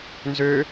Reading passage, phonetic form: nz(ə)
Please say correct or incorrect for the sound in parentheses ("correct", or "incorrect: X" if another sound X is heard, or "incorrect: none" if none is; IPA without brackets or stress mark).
incorrect: ø